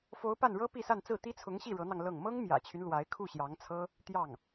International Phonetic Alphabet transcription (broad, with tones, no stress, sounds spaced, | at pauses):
f o˧˥ ʊ̯ p a˥˩ n ɻ ɤ˥ p i˥˧ s a˥˧ n t͡s ɹ̩˥˩ t̪ i˥ t͡sʰ ʊ˧˥ ŋ ɕ i˥˩ ɻ ɤ˧˥ n̪ ɑ˧ ŋ l ɤ˥˩ ŋ m ɤ˥ ŋ m j ä̰˨˩ t͡ɕʰ y˦ n l w a˧˥ ɪ̯ kʰ u˥˩ ɕ j ɑ˧˥ ŋ t͡sʰ ɤ˥ | t̪ j ɑ˥˩ ŋ